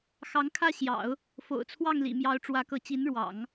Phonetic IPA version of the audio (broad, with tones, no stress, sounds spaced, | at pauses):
x ɑ˧˥ ŋ kʰ ä˥˩ ɕ j ɑ̰˨˩˦ ʊ̯ | f o̰˨˩ ʊ̯ t͡sʰ w ɑ˥˩ ŋ l ḭ˨˩ m j ɑ˧˥ ʊ̯ ʈ͡ʂ w ä˧˥ k ɤ˧˥ t͡ɕ i˧˥ n ɻ w ɑ̰˨˩˦ ŋ